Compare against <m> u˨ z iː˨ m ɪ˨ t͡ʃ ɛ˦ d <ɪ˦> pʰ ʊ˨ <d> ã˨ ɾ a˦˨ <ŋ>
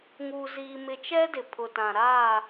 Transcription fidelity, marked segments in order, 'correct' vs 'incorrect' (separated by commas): incorrect, incorrect, incorrect, incorrect